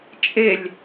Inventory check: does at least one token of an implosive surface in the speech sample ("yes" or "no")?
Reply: no